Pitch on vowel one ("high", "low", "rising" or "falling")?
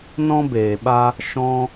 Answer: high